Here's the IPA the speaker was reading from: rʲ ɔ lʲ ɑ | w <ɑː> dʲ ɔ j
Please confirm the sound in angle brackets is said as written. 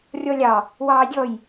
yes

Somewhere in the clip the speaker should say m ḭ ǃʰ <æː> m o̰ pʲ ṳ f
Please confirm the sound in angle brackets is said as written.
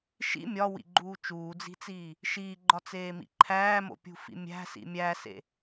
yes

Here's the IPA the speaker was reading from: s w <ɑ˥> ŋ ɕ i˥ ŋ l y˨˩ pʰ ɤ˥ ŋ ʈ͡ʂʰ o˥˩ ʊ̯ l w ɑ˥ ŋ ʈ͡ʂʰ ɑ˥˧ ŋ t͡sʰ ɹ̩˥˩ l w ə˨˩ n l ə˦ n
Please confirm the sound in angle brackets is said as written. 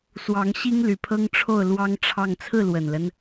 no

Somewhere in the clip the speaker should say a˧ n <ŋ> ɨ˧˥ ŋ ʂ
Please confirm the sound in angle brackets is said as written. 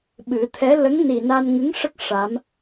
yes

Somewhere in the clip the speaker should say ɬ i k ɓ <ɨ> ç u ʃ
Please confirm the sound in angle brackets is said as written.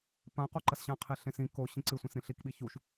no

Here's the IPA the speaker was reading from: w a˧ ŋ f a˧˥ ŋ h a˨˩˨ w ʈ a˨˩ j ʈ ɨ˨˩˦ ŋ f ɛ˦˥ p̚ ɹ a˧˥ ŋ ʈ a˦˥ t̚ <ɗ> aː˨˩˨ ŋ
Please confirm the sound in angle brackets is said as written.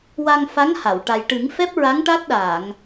yes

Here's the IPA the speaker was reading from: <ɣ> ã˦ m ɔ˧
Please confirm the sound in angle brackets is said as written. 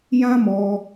no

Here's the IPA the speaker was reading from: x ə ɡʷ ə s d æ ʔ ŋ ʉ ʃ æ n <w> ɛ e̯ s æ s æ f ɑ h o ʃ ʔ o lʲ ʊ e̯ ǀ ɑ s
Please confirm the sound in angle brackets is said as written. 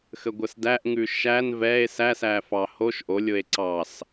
no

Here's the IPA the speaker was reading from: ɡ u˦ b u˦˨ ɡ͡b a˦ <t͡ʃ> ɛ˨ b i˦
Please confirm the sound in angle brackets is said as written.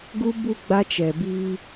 yes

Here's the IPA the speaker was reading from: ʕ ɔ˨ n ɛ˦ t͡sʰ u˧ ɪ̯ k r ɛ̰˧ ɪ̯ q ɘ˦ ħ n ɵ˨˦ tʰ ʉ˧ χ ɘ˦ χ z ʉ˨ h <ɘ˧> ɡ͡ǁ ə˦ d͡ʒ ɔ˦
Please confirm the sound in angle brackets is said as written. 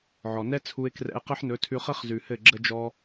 no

